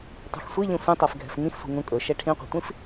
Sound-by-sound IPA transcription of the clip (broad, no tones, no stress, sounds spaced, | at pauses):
tˤ ṳ x sʷ i ʎ ĩ sʷ ĩ tˤ ɜ f ɡʱ ɛ̤ f ŋ ĩ x sʷ i̤ ŋ ũ kʼ ɵ ʃ ɛ ʈʰ ĩ qʷ ɛ̤ tʷ ĩ f